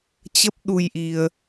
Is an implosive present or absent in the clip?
present